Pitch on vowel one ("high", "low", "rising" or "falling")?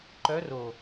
rising